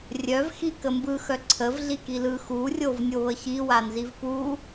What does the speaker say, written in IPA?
rʲ œ v x i k ə m b ɯ x œ ǀʰ ə v ɮ i k i l ɯ x u rʲ o v nʲ o β ə ç i w a n z i v p u

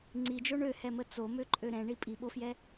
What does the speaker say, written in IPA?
ŋ͡ǀ i d͡ʒ o ɳ ø h ɛ m ə t͡s o m ø ǃʼ ø ɾ ɛ̃ ɳ i pʼ i ɓ o f j ɛ

